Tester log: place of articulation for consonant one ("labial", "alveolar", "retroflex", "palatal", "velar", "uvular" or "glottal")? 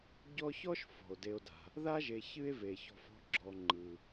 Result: palatal